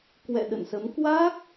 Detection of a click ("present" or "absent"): absent